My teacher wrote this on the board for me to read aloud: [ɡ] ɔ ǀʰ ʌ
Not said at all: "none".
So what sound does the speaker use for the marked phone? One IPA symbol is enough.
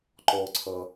ǃ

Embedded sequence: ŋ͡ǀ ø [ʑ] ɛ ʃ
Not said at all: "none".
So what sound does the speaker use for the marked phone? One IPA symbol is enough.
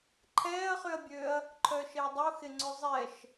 zˤ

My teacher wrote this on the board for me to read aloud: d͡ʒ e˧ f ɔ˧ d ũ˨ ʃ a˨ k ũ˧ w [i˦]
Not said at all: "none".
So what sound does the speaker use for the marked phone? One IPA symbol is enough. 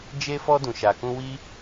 i˦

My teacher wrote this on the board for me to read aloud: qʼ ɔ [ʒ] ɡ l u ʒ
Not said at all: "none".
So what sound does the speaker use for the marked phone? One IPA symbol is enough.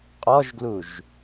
ʒ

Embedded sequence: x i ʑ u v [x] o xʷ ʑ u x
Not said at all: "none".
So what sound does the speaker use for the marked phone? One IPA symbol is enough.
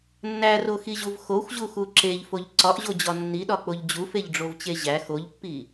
x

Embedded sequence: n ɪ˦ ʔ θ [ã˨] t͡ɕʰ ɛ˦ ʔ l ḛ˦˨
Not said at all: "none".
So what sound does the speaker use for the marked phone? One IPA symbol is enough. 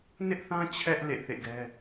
ã˦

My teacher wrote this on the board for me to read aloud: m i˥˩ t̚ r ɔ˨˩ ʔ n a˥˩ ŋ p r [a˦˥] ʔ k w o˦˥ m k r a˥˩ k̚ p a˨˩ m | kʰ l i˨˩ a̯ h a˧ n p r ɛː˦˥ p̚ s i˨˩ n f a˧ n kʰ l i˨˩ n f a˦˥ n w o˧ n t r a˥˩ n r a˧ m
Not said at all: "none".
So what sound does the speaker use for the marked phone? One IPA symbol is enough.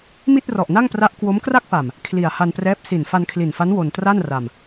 a˦˥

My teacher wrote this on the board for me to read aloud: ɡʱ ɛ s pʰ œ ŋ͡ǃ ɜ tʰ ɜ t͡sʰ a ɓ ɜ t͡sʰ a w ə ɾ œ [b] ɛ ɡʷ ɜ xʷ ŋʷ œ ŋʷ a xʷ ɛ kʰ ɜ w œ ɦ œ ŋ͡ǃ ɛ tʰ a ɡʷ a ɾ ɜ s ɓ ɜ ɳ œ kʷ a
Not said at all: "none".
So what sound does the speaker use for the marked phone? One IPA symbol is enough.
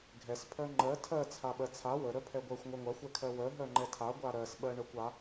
pʰ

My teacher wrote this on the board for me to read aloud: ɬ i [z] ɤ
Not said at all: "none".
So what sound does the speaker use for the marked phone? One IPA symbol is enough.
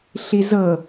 z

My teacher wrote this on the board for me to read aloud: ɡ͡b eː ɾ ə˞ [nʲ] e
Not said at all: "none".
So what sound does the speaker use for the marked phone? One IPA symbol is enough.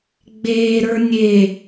nʲ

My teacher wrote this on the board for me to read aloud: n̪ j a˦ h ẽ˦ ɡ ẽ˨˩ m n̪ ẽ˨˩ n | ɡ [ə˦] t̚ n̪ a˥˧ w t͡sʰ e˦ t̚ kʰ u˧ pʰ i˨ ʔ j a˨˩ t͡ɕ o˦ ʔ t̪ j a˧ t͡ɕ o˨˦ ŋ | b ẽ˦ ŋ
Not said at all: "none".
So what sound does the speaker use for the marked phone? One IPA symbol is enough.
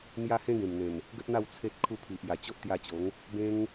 ə˦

